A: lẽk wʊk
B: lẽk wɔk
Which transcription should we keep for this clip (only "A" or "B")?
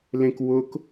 A